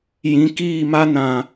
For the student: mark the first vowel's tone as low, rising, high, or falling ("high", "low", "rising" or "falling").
rising